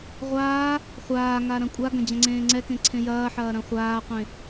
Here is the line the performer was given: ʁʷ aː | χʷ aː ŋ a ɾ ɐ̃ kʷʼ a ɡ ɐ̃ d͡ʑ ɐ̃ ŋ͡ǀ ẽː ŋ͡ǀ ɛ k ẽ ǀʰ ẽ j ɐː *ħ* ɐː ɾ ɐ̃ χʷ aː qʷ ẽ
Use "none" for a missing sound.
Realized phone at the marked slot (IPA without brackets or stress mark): ħ